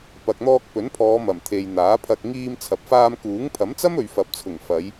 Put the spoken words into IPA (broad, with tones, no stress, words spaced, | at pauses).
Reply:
pɐ˨k̚n̪ɔː˧k̚pɵ˨˥npʰɔː˨˧ mɐ˨˩m t̪ʰe˨j n̪aː˨˥pʰɐ˧k̚ ŋiː˧m t͡sʰɐ˨p̚faː˧mkuː˨˥ŋ pʰɐ˨˥mt͡sɐ˥m ɵ˨ɥfɐ˨p̚t͡sʰʊ˨˩ŋ fɐ˨˧j